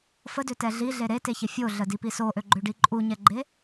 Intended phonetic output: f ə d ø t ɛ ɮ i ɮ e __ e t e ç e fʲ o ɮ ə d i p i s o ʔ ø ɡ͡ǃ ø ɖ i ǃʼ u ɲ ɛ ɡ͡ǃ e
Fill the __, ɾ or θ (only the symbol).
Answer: ɾ